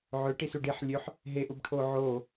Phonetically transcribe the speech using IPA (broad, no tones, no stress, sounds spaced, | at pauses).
ʕ ø ʈ i s u ɖ i ħ lʲ ø ħ | ɦ e ʔ u b ʈʰ oː ʕ oː